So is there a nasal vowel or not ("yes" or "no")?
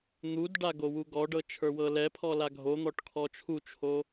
no